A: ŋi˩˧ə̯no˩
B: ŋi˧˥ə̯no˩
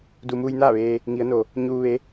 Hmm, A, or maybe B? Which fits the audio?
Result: A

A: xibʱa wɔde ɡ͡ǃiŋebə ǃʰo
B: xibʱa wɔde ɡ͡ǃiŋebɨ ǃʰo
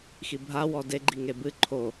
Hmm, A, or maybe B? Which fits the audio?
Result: B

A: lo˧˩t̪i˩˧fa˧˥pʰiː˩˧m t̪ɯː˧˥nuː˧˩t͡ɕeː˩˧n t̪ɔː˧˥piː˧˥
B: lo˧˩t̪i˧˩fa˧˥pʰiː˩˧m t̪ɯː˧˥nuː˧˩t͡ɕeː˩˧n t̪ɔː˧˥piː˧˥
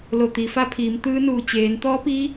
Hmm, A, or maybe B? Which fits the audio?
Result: A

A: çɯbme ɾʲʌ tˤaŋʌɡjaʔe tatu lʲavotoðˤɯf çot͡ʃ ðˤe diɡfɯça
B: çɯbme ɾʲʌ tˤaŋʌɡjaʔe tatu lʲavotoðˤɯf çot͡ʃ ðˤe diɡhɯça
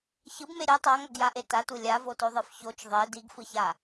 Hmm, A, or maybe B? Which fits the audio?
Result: A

